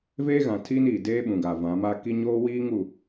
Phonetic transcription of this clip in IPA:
veː˦ɣã˨tʰiː˦niː˨ deː˦ɓũ˨ ɡa˨vã˨˦ma˦ ki˦ɲoː˦wiː˦ŋ u˨

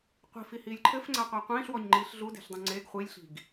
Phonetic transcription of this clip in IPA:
qʷi̤fihiːlʲ ǃʰɘfŋ͡ǀaqʷa qʷĩːɬwɔɲŋ͡ǃiːɬ ɮude̤ɬdˤũ ŋ͡ǀeɡ χʷilʲɬi̤ɡ

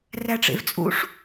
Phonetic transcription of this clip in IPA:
ræʈ͡ʂḛvt͡sʼṵʂ

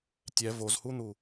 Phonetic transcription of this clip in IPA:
tʲɛ vozhun̪u

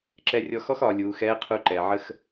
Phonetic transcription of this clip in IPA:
ǁɛ˧rʲɔ˧xɔ˥x ɒ˩˧lʲuː˩˧xɛː˧˥qʰu˧ ǃɛ˩ʕə˧x

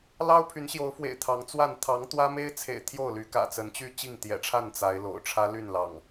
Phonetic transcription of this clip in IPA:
lɑ˦ʊ̯pʰy˨˦nɕjo˨˦ʊ̯fwḛ˨˩ɪ̯ t̪ʰɑ˨˦ŋt͡swa˥˨n t̪ʰɑ˨˦ŋ t̪wä˦me˦ɪ̯t͡sʰḛ˨˩ɪ̯ t̪ʰjo˥˨ʊ̯ly˨˦ kä̰˨˩t͡sə˨˦nt͡ɕy˥˨ t͡ɕi˥˨ŋt̪jɛ̰˨˩ʈ͡ʂʰa˥˨n t͡sa˨˦ɪ̯lo̰˨˩ʊ̯ ʈ͡ʂʰä˦ ly˥˨nlɑ̰˨˩ŋ

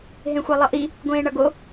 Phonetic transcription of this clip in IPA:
ɦẽxʷelˠʌʔi | ɡʷẽːɳʌɡo

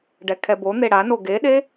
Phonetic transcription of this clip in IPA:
ɖɛkʰɛbon̪e ɽano ɡeɗe

